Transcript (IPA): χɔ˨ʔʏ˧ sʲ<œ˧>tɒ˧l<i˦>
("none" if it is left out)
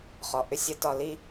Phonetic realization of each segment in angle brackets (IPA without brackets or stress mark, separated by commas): ə˧, i˦